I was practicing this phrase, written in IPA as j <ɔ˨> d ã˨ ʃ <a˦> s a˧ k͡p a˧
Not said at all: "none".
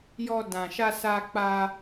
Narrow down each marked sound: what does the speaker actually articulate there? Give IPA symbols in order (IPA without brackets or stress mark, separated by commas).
ɔ˧, a˧